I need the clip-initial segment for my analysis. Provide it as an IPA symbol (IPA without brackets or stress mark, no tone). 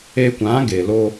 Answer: e